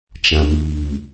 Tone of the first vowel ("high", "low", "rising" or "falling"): low